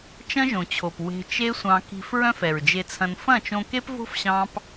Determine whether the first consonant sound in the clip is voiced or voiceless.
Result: voiceless